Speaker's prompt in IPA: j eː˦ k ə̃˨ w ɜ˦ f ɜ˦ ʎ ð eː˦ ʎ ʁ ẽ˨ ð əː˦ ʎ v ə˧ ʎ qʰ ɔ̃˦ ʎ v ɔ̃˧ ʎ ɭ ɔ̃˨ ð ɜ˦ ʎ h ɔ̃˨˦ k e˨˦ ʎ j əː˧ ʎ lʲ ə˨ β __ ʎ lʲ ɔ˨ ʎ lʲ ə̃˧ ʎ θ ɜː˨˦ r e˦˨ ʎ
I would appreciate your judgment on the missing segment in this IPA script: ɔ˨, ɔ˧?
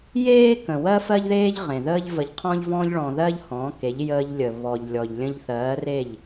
ɔ˨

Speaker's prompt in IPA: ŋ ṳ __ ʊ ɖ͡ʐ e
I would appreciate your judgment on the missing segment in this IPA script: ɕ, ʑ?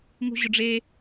ʑ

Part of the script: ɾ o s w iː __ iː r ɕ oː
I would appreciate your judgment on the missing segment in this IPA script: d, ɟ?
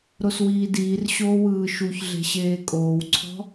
d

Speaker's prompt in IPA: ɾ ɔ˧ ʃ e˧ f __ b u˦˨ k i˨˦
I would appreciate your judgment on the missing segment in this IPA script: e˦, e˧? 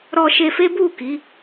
e˦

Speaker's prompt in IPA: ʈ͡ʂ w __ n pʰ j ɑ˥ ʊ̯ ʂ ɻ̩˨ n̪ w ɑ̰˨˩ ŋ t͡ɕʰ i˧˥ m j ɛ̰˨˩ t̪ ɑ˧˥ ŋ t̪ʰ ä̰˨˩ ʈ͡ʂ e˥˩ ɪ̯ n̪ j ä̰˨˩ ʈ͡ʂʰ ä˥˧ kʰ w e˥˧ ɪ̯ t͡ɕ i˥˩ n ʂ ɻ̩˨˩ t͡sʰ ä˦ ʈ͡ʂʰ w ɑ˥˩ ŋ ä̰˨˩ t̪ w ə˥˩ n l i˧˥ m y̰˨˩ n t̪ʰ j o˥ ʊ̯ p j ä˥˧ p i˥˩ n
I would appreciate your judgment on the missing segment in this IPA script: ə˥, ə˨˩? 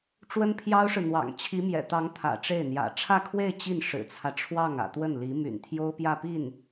ə˥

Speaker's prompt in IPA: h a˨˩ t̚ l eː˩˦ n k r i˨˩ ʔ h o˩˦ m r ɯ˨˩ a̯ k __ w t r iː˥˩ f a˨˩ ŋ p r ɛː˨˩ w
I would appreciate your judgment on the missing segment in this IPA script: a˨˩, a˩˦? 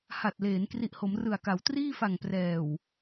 a˩˦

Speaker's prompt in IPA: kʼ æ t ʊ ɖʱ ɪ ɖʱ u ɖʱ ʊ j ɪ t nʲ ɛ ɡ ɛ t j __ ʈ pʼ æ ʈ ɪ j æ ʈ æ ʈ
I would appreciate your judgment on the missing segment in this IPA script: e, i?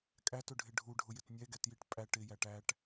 i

